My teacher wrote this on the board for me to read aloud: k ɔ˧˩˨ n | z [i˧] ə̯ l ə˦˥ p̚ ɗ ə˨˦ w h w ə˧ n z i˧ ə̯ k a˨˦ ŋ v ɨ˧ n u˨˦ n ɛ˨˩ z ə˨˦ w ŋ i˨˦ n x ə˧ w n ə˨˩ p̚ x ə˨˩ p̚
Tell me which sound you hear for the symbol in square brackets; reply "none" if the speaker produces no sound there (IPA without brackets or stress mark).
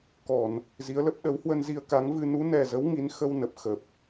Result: i˨˦